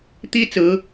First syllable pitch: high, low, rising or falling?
high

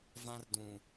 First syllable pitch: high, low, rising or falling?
high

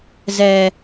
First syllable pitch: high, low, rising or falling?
low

